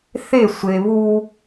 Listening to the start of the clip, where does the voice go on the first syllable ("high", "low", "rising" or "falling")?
falling